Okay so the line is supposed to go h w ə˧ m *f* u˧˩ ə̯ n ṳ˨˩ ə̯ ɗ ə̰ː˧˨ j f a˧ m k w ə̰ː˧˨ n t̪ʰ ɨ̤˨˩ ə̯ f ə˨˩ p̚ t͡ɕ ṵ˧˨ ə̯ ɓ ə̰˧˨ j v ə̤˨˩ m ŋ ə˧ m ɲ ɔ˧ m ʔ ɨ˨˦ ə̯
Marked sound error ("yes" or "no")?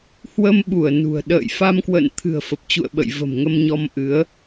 yes